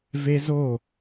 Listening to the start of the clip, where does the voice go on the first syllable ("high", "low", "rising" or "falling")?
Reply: high